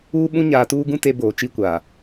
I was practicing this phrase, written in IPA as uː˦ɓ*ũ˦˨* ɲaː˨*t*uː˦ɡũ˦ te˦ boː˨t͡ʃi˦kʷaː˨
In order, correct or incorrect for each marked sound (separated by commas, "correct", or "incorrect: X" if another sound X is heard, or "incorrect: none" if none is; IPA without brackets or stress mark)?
incorrect: ũ˦, correct